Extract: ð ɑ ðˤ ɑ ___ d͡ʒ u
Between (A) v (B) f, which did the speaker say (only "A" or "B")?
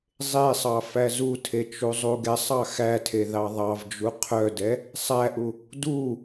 A